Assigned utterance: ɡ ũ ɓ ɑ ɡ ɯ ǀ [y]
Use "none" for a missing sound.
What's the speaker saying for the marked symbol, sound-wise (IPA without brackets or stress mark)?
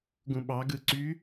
y